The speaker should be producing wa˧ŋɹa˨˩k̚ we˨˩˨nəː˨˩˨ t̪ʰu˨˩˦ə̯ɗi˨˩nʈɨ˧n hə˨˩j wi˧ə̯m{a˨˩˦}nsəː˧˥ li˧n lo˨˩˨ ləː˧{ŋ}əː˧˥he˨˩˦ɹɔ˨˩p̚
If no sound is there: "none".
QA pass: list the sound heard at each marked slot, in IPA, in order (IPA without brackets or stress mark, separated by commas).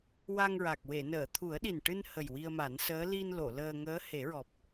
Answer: a˨˩˦, ŋ